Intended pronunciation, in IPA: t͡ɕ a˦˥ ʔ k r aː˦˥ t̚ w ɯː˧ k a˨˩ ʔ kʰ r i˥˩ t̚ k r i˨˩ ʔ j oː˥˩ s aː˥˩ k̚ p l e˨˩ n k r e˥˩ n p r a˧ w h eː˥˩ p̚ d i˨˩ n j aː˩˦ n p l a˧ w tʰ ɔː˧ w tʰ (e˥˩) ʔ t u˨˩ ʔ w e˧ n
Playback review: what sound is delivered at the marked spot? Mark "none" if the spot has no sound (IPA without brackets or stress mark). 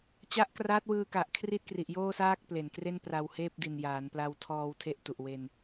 e˥˩